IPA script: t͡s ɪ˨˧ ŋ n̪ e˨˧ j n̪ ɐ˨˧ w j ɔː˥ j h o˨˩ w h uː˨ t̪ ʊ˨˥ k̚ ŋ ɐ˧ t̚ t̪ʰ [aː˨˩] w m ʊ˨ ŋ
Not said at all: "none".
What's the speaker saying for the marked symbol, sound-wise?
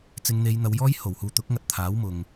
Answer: aː˨˥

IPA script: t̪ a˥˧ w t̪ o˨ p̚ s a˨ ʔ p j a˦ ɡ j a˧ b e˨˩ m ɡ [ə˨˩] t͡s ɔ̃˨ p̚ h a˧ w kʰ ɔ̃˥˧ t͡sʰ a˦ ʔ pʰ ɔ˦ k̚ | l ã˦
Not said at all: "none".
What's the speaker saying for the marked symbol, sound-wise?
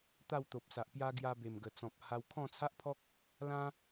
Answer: ə˨˩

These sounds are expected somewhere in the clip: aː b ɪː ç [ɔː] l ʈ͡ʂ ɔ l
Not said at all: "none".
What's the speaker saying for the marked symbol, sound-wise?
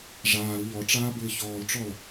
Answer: ɔː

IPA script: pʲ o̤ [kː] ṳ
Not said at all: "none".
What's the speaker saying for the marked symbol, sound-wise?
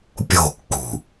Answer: kː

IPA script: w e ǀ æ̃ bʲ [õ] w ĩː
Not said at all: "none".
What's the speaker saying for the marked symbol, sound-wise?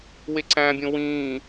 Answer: õ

